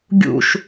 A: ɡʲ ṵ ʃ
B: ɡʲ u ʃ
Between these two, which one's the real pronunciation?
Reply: A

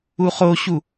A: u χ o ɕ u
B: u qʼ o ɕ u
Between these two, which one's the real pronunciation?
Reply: A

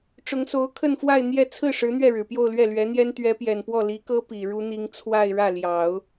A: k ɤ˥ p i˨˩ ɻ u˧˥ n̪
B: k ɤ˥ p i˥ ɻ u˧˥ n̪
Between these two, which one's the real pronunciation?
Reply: A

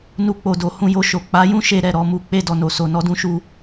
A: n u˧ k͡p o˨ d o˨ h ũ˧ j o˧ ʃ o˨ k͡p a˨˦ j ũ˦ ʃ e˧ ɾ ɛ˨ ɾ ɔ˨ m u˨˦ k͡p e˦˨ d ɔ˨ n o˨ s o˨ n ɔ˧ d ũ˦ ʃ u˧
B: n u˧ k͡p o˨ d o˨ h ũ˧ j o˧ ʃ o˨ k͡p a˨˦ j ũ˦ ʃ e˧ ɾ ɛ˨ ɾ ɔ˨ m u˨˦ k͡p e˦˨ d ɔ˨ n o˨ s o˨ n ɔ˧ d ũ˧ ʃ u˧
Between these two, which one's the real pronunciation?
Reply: A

